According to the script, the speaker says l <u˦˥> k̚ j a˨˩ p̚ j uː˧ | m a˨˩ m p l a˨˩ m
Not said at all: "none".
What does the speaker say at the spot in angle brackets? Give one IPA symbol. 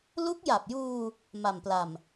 u˦˥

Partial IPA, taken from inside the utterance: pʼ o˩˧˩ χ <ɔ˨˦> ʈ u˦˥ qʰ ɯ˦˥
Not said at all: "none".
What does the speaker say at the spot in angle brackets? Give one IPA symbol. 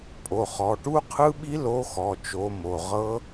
ɔ˩˧˩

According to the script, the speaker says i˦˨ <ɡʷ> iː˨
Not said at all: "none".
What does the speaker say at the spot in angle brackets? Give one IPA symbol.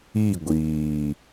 ɡʷ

